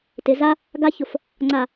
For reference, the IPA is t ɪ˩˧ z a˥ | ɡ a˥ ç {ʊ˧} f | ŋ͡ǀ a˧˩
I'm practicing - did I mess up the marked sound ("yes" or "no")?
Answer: yes